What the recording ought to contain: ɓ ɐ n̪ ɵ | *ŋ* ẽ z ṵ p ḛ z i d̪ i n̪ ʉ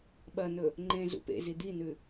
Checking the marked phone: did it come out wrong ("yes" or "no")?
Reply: yes